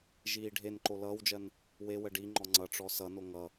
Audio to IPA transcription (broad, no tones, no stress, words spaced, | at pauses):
ʒiːɖʱenǃo lʌːwd͡ʒɜn | wewə ɖiŋ͡ǃɔ ŋ͡ǀʌʈ͡ʂɔ sʌno ŋʌ